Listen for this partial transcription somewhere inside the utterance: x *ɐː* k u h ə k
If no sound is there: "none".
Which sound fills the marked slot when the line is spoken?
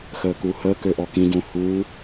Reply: əː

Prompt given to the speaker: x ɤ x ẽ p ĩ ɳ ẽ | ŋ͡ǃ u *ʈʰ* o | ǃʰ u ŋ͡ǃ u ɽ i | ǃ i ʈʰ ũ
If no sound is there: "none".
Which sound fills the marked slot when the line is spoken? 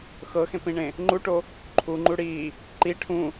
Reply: ʈ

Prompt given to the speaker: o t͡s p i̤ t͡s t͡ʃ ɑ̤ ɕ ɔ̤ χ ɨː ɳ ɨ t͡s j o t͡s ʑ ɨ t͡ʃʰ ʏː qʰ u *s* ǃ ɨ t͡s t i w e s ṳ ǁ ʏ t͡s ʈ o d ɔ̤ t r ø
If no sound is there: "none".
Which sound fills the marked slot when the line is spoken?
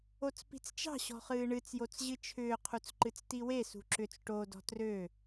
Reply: t͡s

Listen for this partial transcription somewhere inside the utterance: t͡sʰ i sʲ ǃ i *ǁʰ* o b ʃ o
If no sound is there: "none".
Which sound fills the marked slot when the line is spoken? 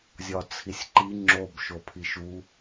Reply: ŋ͡ǁ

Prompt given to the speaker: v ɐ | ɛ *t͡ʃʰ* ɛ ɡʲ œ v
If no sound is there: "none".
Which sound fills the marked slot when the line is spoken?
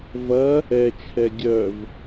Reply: t͡ʃʰ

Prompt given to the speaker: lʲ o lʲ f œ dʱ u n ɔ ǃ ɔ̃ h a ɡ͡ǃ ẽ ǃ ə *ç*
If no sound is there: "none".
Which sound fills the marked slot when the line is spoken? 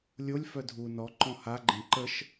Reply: ʃ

